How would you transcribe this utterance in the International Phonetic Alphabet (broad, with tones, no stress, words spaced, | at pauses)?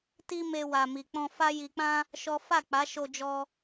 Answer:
ti˦me˧ wa˨mi˨k͡pɔ̃˧fa˦ ji˧k͡pã˦ | ʃɔ˦ fa˦˨k͡pa˨˦ʃo˧d͡ʒɔ˧